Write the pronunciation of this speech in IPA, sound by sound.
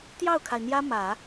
t̪ j ɑ˥˩ ʊ̯ kʰ a˩ ɪ̯ n̪ j ä˥ m ä˨˩˦

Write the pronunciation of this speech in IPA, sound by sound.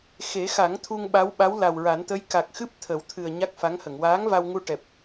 x e˨˩˦ x a˨˩˦ ŋ t̪ʰ u˧ ŋ ɓ a˧˥ w ɓ a˧˥ w l a˨˩ w ɹ a˨˩˦ n t̪ ə˧˥ j k a˨˩ k̚ x ɨ˦˥ p̚ t̪ʰ ə˨˩˦ w t̪ʰ ɨ˨˩ ə̯ ɲ a˦˥ k̚ f a˧˥ ŋ h ə˨˩˨ ŋ w aː˧˥ ŋ v a˧ w ŋ u˧ ʈ ɛ˨˩ p̚

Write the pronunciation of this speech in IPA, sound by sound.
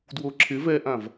d w o ǁʰ ɪ v ɛ ʔ ã v

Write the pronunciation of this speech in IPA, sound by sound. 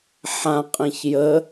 ħ ã qʼ ĩ ç j ə

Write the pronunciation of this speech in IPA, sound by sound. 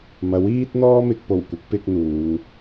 m ɐ˨˥ w iː˥ t̚ n̪ ɔː˥ m ɪ˧ k̚ p o˨˩ w kʷ ɪ˨˥ k̚ p ɪ˧ k̚ n̪ uː˨˧ ŋ

